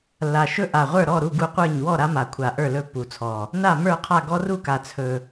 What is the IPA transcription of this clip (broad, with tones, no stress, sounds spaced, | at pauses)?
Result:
lː a˨˩ ʃ ɵ˦ ʔ a˨˩ ʁʷ ə˞˥˨ ɾ ɔ˥˨ ɾ u˥˨ ɡ u˦ qʷ ə˞˥˨ ɲ w ɔ˥˨ ɾ a˦ m a˨˩ kʷʰ a˨˩ ʔ ə˞˥˨ l ɵ˥˨ pː u˨˩ t͡sʰ ɔ˨˩ | n a˥˨ m ə˞˥˨ qʰ a˥˨ ɡ ɔ˦ r u˥˨ k a˨˩ t͡sʰ ɵ˨˩